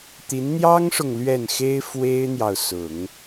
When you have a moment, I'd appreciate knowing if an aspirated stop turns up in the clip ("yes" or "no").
no